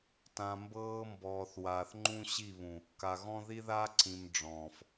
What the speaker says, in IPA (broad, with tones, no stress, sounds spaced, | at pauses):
t ã˨ m b ɤː˦ m b ɔː˨ θ w aː˨ θ ŋ͡ǃ ũ˦ ɕ i˦˨ β ũ˨ | k a˨ ɣ ɔ̃˦ ð i˦ ð a˦ ǀ ĩ˨ m ɖ͡ʐ ɔ̃ː˨ f